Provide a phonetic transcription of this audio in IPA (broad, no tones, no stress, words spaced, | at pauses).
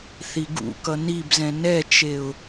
θiɡṵkʌ nibzɛ̃ nɛt͡ʃeʊ̯